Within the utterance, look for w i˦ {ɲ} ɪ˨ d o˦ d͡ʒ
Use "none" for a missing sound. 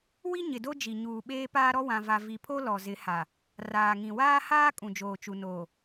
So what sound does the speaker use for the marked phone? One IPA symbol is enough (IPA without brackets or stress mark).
ɲ